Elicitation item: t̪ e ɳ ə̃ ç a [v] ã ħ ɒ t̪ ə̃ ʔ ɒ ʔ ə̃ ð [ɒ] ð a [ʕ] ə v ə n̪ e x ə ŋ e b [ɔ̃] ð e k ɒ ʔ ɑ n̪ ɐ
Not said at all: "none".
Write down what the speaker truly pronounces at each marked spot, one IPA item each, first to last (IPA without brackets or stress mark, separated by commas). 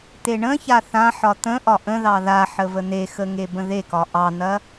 θ, ɑ, ħ, ə̃